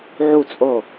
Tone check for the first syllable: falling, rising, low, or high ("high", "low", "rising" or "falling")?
falling